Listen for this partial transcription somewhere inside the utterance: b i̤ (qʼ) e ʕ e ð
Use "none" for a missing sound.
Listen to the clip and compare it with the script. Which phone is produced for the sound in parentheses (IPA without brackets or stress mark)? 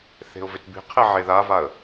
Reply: qʰ